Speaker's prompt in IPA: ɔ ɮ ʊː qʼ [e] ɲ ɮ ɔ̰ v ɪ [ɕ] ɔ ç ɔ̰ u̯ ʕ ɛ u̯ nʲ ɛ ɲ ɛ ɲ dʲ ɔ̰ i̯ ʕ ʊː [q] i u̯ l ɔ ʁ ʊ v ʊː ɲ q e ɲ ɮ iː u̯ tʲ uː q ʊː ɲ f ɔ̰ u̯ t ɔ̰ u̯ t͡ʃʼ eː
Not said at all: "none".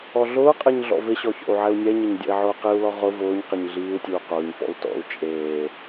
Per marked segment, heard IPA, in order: e, ɕ, q

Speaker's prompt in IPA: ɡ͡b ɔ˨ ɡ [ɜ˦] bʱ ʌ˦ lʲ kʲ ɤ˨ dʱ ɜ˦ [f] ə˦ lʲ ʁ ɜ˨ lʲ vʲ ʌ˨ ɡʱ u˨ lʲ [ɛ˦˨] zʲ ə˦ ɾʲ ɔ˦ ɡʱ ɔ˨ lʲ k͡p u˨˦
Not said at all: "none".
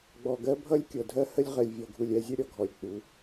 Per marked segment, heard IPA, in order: ɜ˦, h, ɛ˦˨

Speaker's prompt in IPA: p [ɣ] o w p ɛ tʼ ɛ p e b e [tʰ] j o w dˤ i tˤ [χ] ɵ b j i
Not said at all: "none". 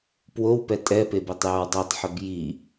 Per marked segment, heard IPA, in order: w, tˤ, ħ

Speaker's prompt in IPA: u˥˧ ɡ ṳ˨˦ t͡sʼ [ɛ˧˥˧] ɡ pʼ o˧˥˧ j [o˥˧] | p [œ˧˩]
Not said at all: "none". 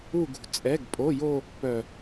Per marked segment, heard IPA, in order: ɛ˧˥˧, o˥˧, œ˧˩

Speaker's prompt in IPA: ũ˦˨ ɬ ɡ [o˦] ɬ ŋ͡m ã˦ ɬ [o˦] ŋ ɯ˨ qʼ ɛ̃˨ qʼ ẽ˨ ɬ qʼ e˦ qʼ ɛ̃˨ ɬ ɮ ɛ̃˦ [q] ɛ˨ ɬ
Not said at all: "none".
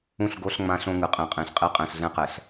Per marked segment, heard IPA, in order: o˦, õ˦, q

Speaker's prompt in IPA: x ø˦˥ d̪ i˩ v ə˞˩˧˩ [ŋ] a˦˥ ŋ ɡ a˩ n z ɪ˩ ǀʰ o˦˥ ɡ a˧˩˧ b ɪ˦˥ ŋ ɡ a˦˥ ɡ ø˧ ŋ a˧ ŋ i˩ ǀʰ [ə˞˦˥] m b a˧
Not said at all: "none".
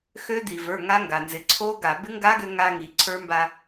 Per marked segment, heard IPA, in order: ŋ, ə˞˦˥

